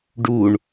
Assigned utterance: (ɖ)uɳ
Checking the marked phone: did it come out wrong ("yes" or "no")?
no